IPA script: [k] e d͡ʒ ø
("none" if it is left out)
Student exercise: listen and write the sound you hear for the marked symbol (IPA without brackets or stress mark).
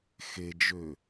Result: x